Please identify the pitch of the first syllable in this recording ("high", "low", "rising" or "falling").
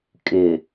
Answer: low